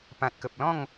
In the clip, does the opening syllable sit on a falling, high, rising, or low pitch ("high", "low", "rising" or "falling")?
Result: low